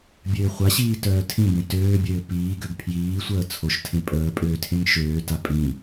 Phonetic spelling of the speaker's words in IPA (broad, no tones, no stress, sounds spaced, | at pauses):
bʲ øː χʷ a ɕ iː t œː tʰ ĩ b ẽ t øː bʲ øː p iː ɡ ø ɡ pʰ j iː sʷ əː t͡sʰ o ʃ tʰ ẽ pʼ əː pʼ øː tʰ ẽ ŋ ʃ øː t a pʼ ĩ